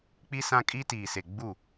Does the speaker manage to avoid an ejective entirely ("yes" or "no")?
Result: no